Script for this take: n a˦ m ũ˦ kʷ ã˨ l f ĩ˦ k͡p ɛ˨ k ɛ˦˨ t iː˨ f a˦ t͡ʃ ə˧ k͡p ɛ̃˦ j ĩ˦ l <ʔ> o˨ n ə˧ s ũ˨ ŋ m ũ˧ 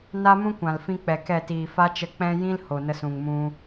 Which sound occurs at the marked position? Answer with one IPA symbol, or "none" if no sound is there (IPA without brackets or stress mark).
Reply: h